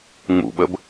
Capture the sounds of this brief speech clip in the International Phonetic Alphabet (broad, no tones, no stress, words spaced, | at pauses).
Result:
ŋ͡mṵɓəb